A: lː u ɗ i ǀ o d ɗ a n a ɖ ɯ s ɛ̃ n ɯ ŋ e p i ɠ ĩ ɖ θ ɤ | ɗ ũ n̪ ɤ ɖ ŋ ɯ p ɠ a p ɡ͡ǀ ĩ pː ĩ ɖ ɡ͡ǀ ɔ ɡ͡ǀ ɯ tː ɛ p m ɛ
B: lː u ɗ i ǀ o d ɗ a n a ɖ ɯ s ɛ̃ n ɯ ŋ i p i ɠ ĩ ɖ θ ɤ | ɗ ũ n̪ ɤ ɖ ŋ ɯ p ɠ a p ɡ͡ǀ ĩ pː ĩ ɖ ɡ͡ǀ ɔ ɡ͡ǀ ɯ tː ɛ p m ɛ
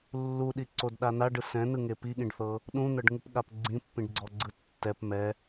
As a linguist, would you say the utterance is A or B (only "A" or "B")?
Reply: A